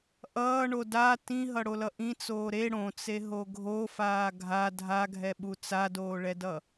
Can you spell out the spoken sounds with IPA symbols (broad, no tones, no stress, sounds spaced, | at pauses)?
ʔ ʌː ɳ o d a t ĩ ɦ ʌ ɽ o l ʌ ʔ ĩ t͡s oː ɾ e ɽ õ t͡s e ɦ o ɡʱ o f aː ɡʱ a dʱ a ɡʱ ɛ ɓ u t͡s a d oː ɭ ɛ d ʌ